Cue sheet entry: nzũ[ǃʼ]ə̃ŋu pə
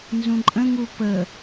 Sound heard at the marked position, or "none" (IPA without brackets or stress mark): ǃʼ